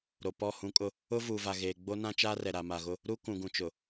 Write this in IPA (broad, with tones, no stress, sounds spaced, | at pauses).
ɾ o˨ p ɔ˦˨ h ũ˦ kʼ ʊ˦ | ʊ˦ v uː˨ v a˨ ɣ eː˨ ɡ͡b o˦ n ã˦ t͡ʃ aː˦ r ɛ˨ ɾ a˨ m a˨ ɣ ʊ˦ | ɾ uː˦ k ũ˨ ɡ ũ˨ t͡ʃ ʊ˨